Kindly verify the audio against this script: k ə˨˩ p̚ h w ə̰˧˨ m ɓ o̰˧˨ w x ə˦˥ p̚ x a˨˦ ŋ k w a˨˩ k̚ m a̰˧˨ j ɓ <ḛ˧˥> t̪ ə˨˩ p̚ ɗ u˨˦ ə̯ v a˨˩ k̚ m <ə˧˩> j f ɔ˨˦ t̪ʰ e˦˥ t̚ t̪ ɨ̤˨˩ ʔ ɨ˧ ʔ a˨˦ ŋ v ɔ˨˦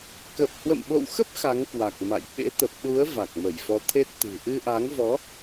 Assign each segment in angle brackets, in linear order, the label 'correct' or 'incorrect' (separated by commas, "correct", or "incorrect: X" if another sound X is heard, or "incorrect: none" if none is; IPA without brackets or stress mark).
correct, correct